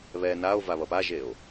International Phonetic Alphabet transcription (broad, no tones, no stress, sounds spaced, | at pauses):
β ɛ n a o̯ v a β ʌ p a ʒ e o̯